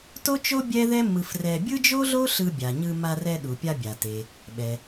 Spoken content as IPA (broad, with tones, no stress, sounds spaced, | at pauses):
t o˥ t͡ʃ o˥ bʲ ɛ˥ ð ɛ˥ m ɯ˧ f r ɛ˧ bʲ ɯ˥ d͡ʒ o˥ ɮ o˥ ɬ ɯ˧ bʲ a˩ ɲ ɯ˧ m a˧ r ɛ˧ ɗ u˩ pʲ a˧ bʲ a˩ t e˩ | ɓ ɛ˩